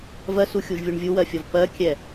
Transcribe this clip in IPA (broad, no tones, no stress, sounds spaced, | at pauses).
v ɜ s u xʲ u ʒ vʲ u ɳ vʲ u w ɜ fʲ ɒ v p ɜ kʲ ɛ